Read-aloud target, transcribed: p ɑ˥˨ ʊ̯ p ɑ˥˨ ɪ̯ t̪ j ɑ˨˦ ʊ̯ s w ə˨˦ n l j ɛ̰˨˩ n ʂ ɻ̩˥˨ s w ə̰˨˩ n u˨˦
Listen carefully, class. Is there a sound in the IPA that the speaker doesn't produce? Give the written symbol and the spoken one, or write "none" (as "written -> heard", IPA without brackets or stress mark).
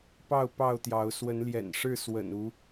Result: ɪ̯ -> ʊ̯